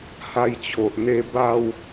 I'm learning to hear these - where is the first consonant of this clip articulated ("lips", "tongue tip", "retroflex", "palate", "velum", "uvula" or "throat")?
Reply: throat